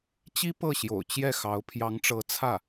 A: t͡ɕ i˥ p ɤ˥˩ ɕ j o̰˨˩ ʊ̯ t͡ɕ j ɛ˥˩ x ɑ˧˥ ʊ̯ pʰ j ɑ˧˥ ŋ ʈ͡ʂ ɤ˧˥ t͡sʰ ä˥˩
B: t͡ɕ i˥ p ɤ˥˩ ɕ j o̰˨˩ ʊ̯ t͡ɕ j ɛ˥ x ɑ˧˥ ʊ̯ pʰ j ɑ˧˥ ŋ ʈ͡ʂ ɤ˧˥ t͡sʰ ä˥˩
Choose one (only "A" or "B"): A